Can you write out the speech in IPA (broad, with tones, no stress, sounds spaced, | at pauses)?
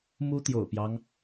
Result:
m u˥ t̪ j o̰˨˩ ʊ̯ p j ɑ˦ ŋ